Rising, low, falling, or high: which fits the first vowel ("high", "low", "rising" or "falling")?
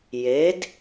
rising